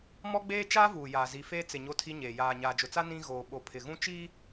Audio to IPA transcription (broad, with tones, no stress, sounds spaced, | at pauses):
m ɔ˦ ɡ͡b eː˦ t͡ʃ aː˦ v uː˨ j aː˨ z i˨ f eː˦ t͡s ɪ˨ ɲ o˦ tʰ i˦ ɲ eː˨ j aː˨ ɲ aː˨ d͡ʒ ʊ˨ t͡s a˦ n ĩ˦ ɣ oː˨ ɓ o˨ pʰ ɪ˨ ɣ ũ˦ t͡ʃ iː˦